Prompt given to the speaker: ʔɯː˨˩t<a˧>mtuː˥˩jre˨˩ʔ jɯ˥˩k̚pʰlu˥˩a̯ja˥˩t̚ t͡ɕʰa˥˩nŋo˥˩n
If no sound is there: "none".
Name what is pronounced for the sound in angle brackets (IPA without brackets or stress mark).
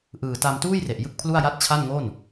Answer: a˧